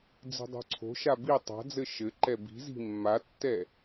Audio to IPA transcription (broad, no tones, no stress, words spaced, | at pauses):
d͡zi̤dˤo̤ǀʰo̤ʃa bi tˤa̤d͡zɘ ʃɘ ǃɛbi̤zi̤ mːatːɛ